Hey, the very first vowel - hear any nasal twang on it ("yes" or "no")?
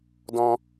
yes